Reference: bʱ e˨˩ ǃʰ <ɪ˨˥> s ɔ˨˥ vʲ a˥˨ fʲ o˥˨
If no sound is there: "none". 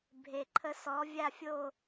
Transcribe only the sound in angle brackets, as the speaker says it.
ə˨˥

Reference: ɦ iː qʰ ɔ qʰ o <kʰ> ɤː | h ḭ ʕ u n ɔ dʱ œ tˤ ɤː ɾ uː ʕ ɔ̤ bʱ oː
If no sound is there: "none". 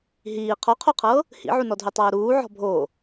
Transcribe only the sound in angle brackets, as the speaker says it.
qʰ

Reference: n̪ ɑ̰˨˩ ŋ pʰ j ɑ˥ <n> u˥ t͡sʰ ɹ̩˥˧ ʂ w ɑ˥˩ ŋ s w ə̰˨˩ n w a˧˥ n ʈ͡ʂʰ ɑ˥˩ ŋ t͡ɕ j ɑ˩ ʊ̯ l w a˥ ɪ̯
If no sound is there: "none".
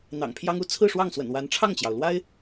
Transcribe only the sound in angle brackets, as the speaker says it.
ŋ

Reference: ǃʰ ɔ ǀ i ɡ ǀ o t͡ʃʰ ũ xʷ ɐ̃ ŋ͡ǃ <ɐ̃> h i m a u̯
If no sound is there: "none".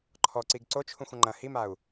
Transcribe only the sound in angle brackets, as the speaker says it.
ɐ̃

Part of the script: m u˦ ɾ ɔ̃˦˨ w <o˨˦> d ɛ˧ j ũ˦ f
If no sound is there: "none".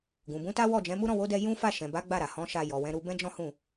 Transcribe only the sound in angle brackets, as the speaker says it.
o˨˦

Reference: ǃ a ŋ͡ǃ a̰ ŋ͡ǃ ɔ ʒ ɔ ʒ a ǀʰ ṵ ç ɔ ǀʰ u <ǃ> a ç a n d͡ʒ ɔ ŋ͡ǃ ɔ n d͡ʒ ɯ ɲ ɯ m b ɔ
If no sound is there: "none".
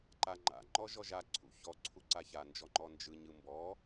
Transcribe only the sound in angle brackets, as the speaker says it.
ǀ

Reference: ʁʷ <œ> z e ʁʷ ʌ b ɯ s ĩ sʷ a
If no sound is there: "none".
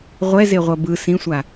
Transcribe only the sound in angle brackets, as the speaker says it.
ɛ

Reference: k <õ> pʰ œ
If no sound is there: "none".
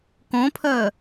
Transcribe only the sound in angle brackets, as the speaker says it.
õ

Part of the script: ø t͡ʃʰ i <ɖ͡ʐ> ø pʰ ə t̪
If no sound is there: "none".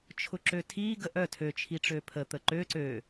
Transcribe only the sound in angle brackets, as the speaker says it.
ʈ͡ʂ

